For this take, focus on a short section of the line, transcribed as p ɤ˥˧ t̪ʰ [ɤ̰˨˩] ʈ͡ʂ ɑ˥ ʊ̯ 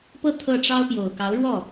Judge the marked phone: incorrect: ɤ˥˩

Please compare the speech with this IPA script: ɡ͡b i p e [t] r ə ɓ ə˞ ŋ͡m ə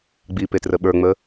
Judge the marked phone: correct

